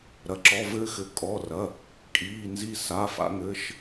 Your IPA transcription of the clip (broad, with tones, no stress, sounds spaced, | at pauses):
ɾ ɐ˩˧˩ ǁ ɔ˩˧˩ v ɘː˧ x ɘ˩˧˩ kʼ ɔ˩˧˩ r ɐ˩˧˩ | kʼ iː˩˧˩ n z i˧ s a˩˧˩ f a̰˧ ŋ ɘː˩˧˩ ʃ